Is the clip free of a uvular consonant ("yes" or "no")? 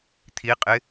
no